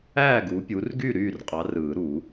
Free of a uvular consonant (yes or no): no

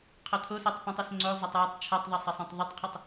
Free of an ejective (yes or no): yes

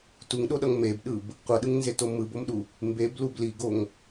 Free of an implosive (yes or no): no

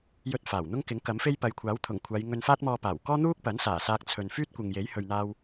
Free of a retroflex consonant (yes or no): yes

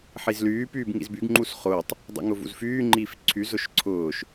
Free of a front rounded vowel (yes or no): no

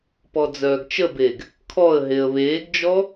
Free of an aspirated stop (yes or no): no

